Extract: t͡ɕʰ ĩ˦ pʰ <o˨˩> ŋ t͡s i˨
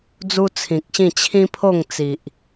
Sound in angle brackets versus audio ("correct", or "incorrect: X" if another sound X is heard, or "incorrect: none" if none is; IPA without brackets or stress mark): incorrect: o˥˧